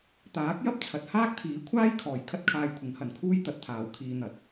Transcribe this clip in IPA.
t̪ aː˨˥ k̚ j ɐ˥ p̚ t͡sʰ ɐ˨ t̚ h aː˥ k̚ t̪ʰ iː˨˥ kʷʰ aː˥ j kʰ ɔː˨˩ j kʰ ɐ˥ t̚ kʰ aː˧ j kʷʰ ɪ˨˥ ŋ h ɐ˨ n kʰ uː˥ j t̪ ɐ˨˥ t̚ t̪ʰ aː˨ w kʰ iː˧ n̪ ɐ˨˥ t̚

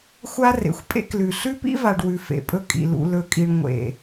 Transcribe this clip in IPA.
xʷ a˦ r ḛ˨ xʷ pʼ ḛ˦ k l ʉ˨ ɬ ʉ˦ p ḭ˦ v a˨ ɖ w ʉ˨ f ḛ˨ pʼ ɵ˦ kʼ ḭ˨ l ṵ˨ l ɵ˨ kʼ i˨ ɳ ŋʷ ḛ˨

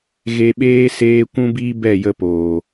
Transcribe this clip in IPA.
ɣ e˧ ɓ eː˦ s eː˦ kʷ ũ˦ b iː˦ b ɛ˦˨ j ə˧ p oː˨

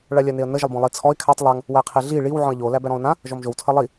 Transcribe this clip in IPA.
ɭ a lʲ a n e ə̯ n ə ʒ ə lˠ b ɔ̃ lˠ i t͡sʰ ɔ ɪ̯ kʰ a tˤ lˠ a ŋ | w æ qʰ e ɮ i ɭ i w ʕ ɔ̃ ə̯ ʎ o l æ b æ ɾ ɔ̃ ʊ̯ n ã | ʒ ɔ m ʒ o w tʰ ə lˠ i

